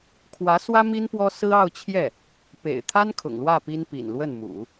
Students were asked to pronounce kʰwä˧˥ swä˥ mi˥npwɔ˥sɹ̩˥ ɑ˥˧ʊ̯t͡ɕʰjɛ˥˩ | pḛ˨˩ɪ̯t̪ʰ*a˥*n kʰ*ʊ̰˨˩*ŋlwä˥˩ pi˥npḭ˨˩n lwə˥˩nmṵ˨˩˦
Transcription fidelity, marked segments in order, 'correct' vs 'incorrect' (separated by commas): correct, correct